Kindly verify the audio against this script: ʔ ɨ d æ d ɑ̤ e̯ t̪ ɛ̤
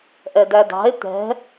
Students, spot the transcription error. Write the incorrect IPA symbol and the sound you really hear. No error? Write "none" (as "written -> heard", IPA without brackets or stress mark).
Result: ɨ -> ɛ